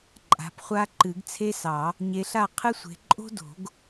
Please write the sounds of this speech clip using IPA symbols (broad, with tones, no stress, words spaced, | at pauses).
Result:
ǃʼa̤˨˦pχʷa˥ ǃɨ˨˩˦ɡt͡sʰe˥sɑ˨˩˦ | ɲe˨˦ɬa˥˨ qʰɨ˥sʷe̤˨˦ ǃʼo̤˥ do̤˨˩˦ɡ